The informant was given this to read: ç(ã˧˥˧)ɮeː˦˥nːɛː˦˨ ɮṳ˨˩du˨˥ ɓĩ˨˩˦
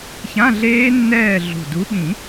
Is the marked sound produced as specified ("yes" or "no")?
yes